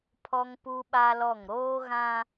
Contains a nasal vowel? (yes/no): yes